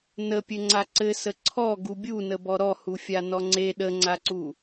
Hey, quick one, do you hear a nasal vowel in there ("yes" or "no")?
no